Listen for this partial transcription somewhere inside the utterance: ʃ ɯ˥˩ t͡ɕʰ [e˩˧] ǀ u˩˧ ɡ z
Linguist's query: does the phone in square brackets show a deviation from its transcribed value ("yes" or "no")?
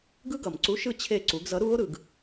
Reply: yes